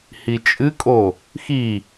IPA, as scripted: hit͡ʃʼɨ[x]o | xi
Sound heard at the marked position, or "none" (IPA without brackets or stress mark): kʼ